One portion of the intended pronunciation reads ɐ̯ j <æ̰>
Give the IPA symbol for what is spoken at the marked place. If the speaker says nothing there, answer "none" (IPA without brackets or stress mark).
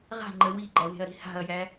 æ